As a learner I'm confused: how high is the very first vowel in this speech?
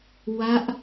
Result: low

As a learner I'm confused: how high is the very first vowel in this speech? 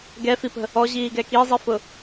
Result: mid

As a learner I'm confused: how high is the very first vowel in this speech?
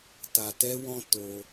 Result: low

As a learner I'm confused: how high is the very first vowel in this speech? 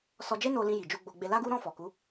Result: mid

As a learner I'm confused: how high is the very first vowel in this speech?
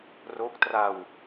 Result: mid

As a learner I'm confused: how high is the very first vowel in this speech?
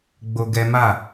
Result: mid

